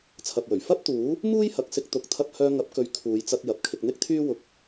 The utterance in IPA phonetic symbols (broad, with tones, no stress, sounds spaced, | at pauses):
t͡sʰ ɐ˨ p̚ w ɵ˨˩ ɥ f ɐ˥ p̚ t̪ uː˨˥ | m uː˥ j h ɐ˨ k̚ s ɪ˧ k̚ t̪ ʊ˨˥ k̚ t̪ʰ ɐ˧ p̚ h œː˧ ŋ ɐ˨˥ p̚ k ɵ˨˧ ɥ kʰ uː˨˧ j t͡s ɐ˧ t̚ j ɐ˨ p̚ kʰ ɪ˧ k̚ n̪ ɪ˥ k̚ t̪ʰ yː˥ w ʊ˨ k̚